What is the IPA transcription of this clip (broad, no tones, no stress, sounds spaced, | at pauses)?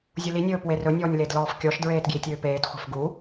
zʲ u l i nʲ ɵː p w e r ɵ nʲ ɔː nʲ l e d l ɔː f kʲ ɔ ʃ d ɹ eː t ɡ j i tʲ øː p eː t χʷ e̤ f ɡ u